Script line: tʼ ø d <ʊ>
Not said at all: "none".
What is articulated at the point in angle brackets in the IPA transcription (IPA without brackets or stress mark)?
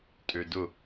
ʊ